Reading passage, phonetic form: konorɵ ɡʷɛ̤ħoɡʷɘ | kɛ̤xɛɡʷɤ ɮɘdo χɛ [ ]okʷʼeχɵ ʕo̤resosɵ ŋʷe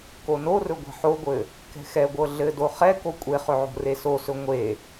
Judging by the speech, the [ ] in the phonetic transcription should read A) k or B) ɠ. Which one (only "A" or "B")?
A